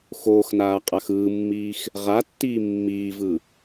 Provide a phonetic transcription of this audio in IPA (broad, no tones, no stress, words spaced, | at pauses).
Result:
xoːxnaː qʼaxɯːmːiːx | ʁatːiː mːiːvɯ